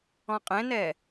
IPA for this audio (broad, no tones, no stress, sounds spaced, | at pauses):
ɔ̃ qʼ ɛ̃ n ɛ